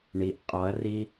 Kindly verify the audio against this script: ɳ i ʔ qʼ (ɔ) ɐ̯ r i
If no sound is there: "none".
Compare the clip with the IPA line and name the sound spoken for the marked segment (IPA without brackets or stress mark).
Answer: ɔ